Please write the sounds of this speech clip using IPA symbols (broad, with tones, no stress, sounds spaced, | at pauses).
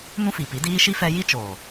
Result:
n ũ˦ f i˨ p i˨˦ d iː˦ ʃ i˦ f ɛ˧ j i˦ t͡ʃ oː˨